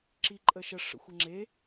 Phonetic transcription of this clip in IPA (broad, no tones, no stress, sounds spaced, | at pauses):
ǁ i ǃʼ ə ʃ ə ʂ ə̰ xʷ ɘ ŋ͡ǁ e